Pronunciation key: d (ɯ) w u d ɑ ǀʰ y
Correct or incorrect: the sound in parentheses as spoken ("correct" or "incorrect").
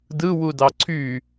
correct